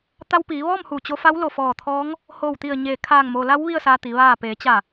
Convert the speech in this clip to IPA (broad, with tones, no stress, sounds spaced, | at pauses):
t̪ a˧ w p iː˩˧ ʋ ɔː˥˨ m h u˧˩ t͡ɕ o˧ f a˧˥ w l o˧˩ f ɔː˧˩ t̪ʰ ɔː˧˥ ŋ | h o˧˩ w t̪ i˧˩ ə̯ ɲ eː˧˩ kʰ aː˧˩ ŋ m o˩ l a˧˥ w ʋ i˥˨ ə̯ s aː˧ t̪ i˩˧ ʋ aː˧˩ p eː˩˧ t͡ɕ a˧˩